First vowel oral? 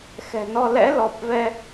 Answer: yes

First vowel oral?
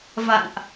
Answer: yes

